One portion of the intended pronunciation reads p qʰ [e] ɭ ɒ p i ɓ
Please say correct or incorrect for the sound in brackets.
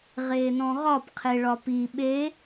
correct